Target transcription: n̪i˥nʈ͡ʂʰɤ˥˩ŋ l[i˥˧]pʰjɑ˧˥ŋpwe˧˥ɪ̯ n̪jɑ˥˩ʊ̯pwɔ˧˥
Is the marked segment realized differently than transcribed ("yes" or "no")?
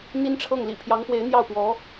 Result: yes